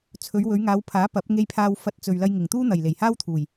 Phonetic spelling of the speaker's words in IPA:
t͡sʰ ɵ˨˧ ɥ w ɵ˨˧ ɥ ŋ aː˨˧ w pʰ aː˨˥ p ɐ˨˥ p̚ ŋ e˧ j pʰ aː˧ w f ɐ˧ t̚ t͡s ɵ˨ ɥ l ɐ˧ j ŋ ɪ˨˩ ŋ t̪ uː˥ n̪ ɐ˨˩ j l e˨˩ j h aː˥ w t̪ʰ uː˨˩ j

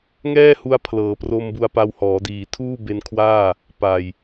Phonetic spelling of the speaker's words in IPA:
ŋ ɛː˥˩ h u˧ a̯ pʰ l ɤː˩˦ p r o˧ m b u˧ a̯ p a˧ w h ɔː˩˦ d iː˨˩ tʰ uː˥˩ b e˧ n kʰ w aː˥˩ | p a˨˩ j

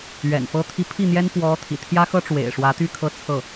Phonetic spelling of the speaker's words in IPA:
ɥ ɛ̰˨˩ n f ɤ˥ t̪ʰ i˧˥ pʰ i˥˩ n̪ j ɛ˥ n p w ɔ˧˥ t̪ʰ ḭ˨˩ t̪ʰ j ä˥ x ɤ˥ ʈ͡ʂ w ḛ˨˩ ɪ̯ ʂ w ä˧˥ t̪ y˥˧ kʰ ɤ˥˧ t͡sʰ ɤ˥˩

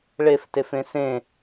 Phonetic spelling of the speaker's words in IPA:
ɭ e f t e f ẽ s ẽ

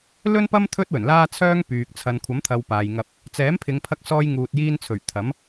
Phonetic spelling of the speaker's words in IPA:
l ɵ˥ n p ɐ˥ m t̪ʰ ɵ˥ t̚ w ɵ˨˩ n l aː˥ t͡sʰ œː˥ ŋ p yː˨ k̚ t͡sʰ ɐ˨ n kʷʰ ɐ˨˥ m t̪ʰ ɐ˨ w p aː˨ j ŋ ɐ˧ p̚ | t͡s ɛː˨˥ m pʰ ɪ˨˧ ŋ pʰ ɐ˧ k̚ s ɔː˧ j ŋ uː˨ t̚ j iː˧ n t͡sʰ ɵ˨˩ ɥ t̪ʰ ɐ˨˥ m

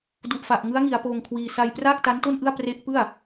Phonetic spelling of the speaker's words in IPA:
d u˨˩ ʔ f a˨˩ ʔ ŋ ɯ˦˥ a̯ ŋ i˩˦ a̯ p oː˧ ŋ kʰ w iː˧ s a˧ j p r aː˥˩ k̚ t a˦˥ n t o˥˩ n ʔ ɯ˥˩ a̯ p r e˦˥ ʔ p ɯ˥˩ a̯

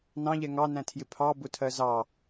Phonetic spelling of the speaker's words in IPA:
n ɑ̃ ʎ ɛ ŋ ɑ n æ̃ tʰ j ɪ pʰ ɑ b ʊ tʰ ɜ z ɑ

